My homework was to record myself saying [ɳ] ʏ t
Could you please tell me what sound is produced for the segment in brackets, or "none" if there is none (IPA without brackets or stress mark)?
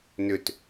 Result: n